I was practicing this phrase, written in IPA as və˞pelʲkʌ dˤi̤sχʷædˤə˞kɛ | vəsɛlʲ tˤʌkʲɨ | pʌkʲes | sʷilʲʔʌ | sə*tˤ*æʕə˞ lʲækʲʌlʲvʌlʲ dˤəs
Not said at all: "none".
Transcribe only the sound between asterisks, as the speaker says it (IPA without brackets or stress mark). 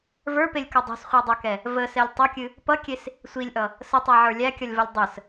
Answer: tˤ